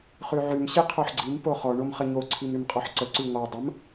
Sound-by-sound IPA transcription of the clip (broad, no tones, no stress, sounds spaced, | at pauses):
χ ʉ ʕ ʉ m ɕ i qʰ o ħ ɡ͡ǀ i m p o χ ɔ ɳ o m χ ə ɲ o ǀʰ i m ɾ ʉ m qʼ ɔ ħ ǀ ə ǀ ʉ ŋ ɔ dˤ ə m